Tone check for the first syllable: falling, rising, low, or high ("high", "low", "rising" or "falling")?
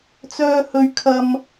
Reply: high